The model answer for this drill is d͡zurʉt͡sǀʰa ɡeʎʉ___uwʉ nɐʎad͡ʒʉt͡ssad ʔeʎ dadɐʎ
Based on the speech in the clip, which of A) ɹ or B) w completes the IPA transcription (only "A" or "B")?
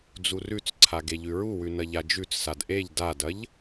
A